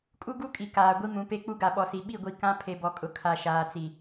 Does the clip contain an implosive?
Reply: yes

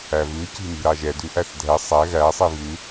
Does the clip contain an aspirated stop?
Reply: no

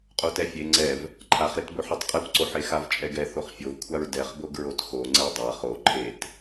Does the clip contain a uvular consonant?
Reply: yes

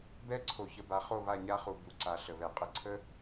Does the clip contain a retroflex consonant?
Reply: no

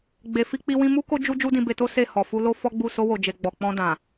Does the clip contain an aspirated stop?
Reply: no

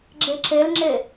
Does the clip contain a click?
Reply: yes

